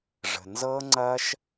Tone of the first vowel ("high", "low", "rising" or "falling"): low